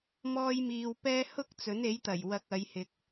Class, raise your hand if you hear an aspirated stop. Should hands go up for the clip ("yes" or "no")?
no